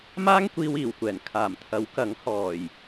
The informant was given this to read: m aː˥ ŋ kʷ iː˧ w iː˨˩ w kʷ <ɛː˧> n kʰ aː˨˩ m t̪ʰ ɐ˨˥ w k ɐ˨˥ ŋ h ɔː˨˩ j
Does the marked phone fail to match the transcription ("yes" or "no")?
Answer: yes